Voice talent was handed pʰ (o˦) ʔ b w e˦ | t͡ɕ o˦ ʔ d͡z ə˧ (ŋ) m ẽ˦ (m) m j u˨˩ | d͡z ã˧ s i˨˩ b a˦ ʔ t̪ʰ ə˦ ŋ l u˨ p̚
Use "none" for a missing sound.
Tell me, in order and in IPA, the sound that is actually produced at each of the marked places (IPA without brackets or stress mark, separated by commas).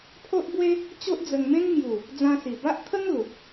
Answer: o˦, ŋ, ŋ